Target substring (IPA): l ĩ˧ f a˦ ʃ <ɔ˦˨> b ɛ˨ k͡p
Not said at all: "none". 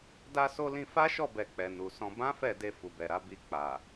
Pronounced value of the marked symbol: ɔ˦˨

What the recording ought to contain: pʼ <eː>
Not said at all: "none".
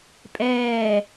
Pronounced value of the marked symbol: ɛː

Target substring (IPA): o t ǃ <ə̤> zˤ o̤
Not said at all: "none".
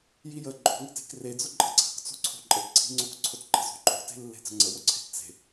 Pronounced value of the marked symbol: ə̤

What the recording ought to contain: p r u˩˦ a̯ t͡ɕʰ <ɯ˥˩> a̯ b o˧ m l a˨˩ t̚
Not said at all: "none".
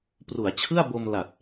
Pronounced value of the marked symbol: ɯ˥˩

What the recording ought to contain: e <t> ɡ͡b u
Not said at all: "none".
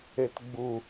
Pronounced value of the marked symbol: t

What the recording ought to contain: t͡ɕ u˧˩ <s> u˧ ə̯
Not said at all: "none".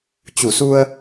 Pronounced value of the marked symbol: s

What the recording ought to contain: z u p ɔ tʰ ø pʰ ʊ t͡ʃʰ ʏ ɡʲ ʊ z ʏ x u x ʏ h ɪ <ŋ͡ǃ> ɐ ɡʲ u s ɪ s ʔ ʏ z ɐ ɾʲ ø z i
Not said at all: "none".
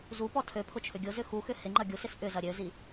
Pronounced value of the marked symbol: ŋ͡ǃ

